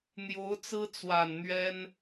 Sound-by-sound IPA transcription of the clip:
n̪ j o˧˥ ʊ̯ t͡s ɹ̩˥ t͡s w a˨˩ n n̪ ɥ ɛ˥ n

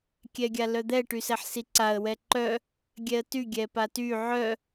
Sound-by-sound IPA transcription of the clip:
kʲ ɛ ɡʲ a l œ d̪ ɛ ʈ y s ɛ ħ s i ǀ a ə̯ w ɛ ǃ œ | ɡʲ ɛ ə̯ t y ɡʲ ɛ p a t y ʕ œ

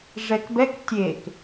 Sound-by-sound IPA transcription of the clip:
ʐ ɛ k b ɛ k tʲ e k

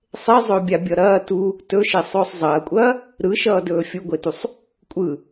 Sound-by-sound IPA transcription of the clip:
sˤ e zˤ ɵː bʲ a bʲ ʌ ɾ ɐː t u | t ɵ ʃ e sˤ ɵː sˤ zˤ ɐː kʷʼ ɐː | ɾ ɯ ʃ ʌː d ɵː fʲ u ɡʷ e t u sˤ | kʷʼ ɯ

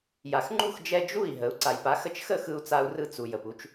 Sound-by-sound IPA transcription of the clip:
j a˩ x ŋ͡ǃ u˥˩ x d͡ʒ ɛ˧ d͡ʒ u˥˩ i̯ ɦ ə˩˥ u̯ ǀ a˩ j p a˩˥ x ə˧ t͡ʃ x ə˥˩ x ɯ˧ u̯ t͡s a˧ u̯ r ɯ˧ t͡s u˩ j ə˩ p u˧ t͡ʃ

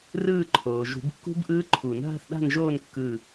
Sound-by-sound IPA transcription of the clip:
r ɯː˦˨ ǃʰ oː˩ ʒ ṳ˨˩˦ b kː ṳ˦˥ b ʔ ɯː˦˥ ǃʰ u˨˩˦ n ɦ a̤˦˨ θ ɗ a̤˦˨ n ʒ oː˦˨ n kː ɯ˦˨

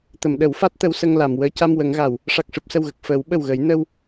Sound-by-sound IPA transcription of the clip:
t̪ ə˨˩˨ m ɗ ə˨˩˦ w f a˦˥ t̚ t̪ ə˧˥ w s ə˧ ŋ l a˨˩˨ m w əː˧˥ c a˧ m w ə˨˩˦ ŋ ɣ a˨˩˨ w | ʂ a˨˩ k̚ ʂ ɨ˨˩ p̚ s ə˨˩ w ɣ ə˨˩ k̚ f əː˨˩˦ w ɓ ə˨˩ w ɣ ə˨˩˦ j n ə˧ w

